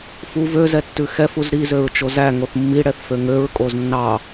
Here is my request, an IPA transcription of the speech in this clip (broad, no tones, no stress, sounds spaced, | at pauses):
f u v ø z ɛ tː ʉ x ɛ f u z ɾ i z ø ɹ t͡ʃ o z æ ŋ o θ mː i ɽ ɛ θ f ø ŋ ø ɹ kʼ o z nː ɑ